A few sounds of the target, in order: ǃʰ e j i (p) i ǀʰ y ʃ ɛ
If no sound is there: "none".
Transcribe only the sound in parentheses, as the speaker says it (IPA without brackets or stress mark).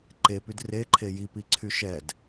p